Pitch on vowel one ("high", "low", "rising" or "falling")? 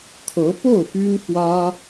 rising